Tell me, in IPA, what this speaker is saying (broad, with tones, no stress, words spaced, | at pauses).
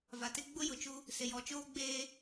va˨tɪ˦ ɡ͡bʊ˦jʊ˨t͡ʃu˦ | sɪ˨jɔ˨t͡ʃoː˦ ɡ͡beː˦